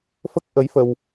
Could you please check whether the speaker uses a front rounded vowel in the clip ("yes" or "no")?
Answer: no